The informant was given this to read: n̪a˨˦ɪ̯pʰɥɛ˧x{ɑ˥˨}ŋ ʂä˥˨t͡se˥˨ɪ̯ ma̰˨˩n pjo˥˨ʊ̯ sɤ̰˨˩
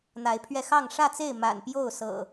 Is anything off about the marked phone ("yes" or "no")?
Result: no